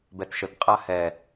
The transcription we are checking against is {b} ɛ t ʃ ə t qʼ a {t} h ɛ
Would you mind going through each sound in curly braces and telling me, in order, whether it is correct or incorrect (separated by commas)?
correct, incorrect